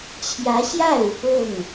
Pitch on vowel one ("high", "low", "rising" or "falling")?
rising